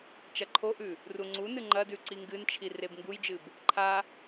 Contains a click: yes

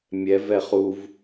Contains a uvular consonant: yes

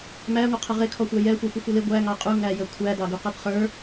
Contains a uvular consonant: yes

